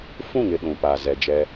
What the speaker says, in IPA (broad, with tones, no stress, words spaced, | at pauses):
fũ˦˨ŋɪ˨ ɗũ˨pa˨ zɛ˨d͡ʒɛ˦